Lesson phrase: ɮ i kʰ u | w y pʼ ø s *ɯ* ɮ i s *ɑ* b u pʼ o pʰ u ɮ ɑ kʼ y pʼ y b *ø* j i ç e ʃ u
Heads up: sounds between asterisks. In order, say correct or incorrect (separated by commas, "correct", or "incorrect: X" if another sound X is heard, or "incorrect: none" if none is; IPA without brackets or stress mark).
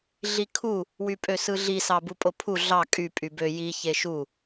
correct, correct, correct